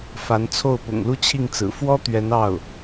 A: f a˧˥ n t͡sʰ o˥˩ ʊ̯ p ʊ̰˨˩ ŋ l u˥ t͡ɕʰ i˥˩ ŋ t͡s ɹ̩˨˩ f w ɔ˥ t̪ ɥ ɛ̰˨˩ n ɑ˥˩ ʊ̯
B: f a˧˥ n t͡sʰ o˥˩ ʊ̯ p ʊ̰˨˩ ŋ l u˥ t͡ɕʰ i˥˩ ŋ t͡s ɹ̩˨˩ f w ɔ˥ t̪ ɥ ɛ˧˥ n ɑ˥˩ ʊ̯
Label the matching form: B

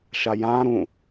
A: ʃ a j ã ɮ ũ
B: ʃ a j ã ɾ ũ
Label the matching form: B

